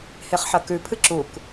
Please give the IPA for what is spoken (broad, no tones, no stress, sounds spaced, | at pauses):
h e χ ħ ɐ k ʉ pʰ ɨ ǁ u k